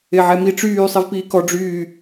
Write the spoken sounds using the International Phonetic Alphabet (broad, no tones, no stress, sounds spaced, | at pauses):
e ʕ ɛ m i ʈ͡ʂ yː sˤ i v p iː k ɔ ɖ͡ʐ yː